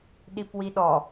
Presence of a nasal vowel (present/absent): absent